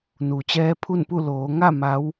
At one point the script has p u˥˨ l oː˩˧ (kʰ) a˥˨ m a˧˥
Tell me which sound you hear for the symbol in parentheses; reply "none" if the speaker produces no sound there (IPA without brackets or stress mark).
ŋ